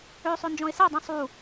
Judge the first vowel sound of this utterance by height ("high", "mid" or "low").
mid